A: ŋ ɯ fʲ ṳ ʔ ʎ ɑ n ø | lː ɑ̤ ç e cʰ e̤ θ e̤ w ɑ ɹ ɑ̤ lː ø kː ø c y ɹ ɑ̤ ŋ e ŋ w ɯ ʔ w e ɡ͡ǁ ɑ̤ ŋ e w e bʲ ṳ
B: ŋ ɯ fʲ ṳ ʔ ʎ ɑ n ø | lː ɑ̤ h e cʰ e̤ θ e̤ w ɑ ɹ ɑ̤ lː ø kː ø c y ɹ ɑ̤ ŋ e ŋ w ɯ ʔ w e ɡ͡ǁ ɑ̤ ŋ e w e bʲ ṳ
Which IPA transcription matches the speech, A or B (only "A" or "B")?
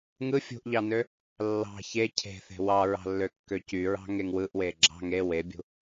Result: A